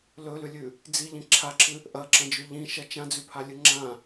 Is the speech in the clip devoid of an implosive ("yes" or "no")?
yes